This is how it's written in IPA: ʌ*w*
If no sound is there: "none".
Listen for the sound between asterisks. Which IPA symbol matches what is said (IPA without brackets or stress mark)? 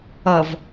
v